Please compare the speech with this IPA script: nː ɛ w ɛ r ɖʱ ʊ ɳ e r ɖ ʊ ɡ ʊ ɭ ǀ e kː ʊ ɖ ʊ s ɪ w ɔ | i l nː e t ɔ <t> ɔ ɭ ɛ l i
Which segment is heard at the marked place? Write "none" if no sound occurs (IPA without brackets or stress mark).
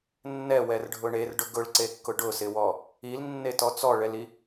t͡s